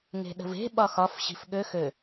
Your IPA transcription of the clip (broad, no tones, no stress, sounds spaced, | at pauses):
ŋ e̤ ɗ ə̤ v e̤ ɓ ɒ x ɒ f ɕ i̤ f ɠ ø x ø